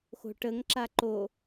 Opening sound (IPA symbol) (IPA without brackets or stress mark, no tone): x